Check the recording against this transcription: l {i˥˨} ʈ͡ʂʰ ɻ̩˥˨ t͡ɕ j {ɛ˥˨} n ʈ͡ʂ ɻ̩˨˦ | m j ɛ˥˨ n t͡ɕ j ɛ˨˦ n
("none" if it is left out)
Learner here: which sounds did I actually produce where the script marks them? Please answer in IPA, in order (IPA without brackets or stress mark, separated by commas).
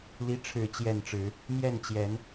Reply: i˦, ɛ˥˨